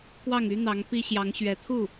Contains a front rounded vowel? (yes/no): yes